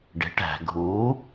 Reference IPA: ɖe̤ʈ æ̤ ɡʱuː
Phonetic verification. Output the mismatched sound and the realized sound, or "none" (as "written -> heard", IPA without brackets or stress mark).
none